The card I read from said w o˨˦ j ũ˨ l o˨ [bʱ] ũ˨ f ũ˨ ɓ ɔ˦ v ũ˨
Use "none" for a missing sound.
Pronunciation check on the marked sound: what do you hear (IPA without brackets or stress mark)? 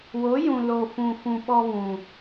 f